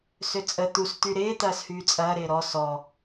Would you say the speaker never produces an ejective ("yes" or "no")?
no